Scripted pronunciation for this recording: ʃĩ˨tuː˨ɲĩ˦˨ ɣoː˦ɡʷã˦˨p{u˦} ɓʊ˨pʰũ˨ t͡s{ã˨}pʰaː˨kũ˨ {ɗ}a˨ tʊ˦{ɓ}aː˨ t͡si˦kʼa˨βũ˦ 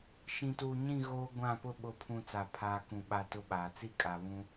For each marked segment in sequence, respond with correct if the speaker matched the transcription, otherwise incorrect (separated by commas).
incorrect, incorrect, incorrect, correct